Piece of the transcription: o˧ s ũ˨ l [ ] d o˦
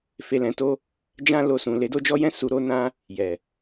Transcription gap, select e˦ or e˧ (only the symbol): e˧